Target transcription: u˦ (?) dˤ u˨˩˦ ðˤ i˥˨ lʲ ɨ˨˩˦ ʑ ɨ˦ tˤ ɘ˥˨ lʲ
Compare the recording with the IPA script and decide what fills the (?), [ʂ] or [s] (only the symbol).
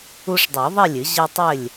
ʂ